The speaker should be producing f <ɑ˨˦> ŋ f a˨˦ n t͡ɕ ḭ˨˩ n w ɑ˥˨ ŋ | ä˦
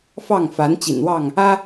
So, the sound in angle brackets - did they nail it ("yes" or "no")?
no